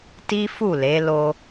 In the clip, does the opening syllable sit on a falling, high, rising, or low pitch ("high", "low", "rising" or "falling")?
high